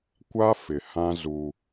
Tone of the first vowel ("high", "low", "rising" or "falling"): high